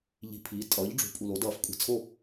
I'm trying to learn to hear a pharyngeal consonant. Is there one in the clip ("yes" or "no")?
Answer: no